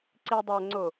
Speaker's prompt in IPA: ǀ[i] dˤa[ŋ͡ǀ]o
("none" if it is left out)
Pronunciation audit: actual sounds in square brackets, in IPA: i, ŋ͡ǀ

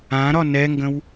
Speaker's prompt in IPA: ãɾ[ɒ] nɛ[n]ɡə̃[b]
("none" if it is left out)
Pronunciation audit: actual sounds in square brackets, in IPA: ɒ, ŋ, w

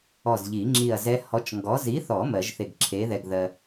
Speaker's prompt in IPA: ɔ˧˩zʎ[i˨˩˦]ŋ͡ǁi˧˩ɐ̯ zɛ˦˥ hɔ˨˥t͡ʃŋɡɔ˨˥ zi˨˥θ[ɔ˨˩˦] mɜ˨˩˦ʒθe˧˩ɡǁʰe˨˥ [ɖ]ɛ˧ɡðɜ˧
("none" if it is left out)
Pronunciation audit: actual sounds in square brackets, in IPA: i˨˩˦, ɔ˨˩˦, ð

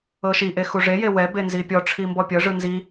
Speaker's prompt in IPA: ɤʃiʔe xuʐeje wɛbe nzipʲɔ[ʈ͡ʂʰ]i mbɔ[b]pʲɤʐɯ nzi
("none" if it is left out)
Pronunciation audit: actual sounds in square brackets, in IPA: ʈ͡ʂʰ, none

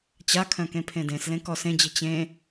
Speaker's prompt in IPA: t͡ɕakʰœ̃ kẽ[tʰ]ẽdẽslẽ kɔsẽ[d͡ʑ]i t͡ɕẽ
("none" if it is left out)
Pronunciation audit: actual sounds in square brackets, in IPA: pʰ, d͡ʑ

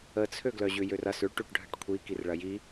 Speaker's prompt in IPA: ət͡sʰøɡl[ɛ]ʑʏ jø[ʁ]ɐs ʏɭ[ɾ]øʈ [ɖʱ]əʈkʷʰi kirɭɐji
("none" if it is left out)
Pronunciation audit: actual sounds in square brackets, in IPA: œ, r, ʈ, ɖʱ

